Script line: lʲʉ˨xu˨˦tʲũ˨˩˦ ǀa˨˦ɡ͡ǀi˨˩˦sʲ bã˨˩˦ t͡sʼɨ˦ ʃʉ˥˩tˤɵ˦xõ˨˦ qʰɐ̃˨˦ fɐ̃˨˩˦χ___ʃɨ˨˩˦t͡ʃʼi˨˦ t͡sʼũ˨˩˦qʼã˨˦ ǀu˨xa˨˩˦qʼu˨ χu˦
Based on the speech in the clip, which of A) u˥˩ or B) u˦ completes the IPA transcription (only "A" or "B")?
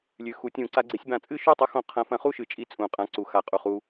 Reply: A